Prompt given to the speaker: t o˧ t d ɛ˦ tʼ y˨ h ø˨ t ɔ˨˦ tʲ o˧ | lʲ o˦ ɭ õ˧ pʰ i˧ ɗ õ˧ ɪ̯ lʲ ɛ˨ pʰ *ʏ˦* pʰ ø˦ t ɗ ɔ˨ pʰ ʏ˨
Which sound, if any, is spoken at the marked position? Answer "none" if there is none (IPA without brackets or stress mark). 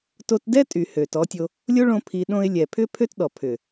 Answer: ʏ˦